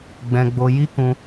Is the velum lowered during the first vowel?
yes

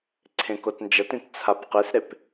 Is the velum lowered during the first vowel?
yes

